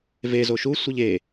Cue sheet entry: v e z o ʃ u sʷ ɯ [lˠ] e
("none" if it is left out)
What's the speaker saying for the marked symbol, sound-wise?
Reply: ʎ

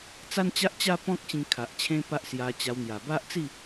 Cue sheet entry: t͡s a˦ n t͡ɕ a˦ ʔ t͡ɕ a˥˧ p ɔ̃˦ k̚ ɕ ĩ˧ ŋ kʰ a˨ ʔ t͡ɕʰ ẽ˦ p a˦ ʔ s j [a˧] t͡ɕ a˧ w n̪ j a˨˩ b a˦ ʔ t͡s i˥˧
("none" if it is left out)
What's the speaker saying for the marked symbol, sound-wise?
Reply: a˧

